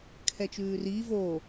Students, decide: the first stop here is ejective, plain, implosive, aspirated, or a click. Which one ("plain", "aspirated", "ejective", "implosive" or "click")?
aspirated